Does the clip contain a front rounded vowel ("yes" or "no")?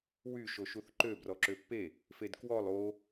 yes